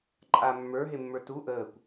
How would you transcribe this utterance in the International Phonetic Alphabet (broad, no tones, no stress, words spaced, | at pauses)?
ǃʼa mːə˞ɦemːə˞ tu ʔəːkʷ